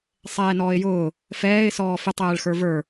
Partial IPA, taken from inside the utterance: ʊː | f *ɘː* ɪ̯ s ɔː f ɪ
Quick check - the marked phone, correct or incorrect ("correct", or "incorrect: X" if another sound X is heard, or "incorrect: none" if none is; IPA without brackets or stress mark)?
incorrect: ɛː